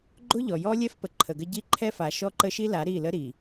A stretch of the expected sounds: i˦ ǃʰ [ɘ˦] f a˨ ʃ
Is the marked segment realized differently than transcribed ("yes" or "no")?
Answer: yes